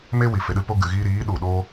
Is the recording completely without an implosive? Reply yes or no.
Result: no